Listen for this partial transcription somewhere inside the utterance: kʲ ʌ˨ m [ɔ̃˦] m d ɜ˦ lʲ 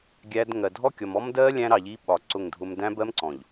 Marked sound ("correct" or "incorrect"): incorrect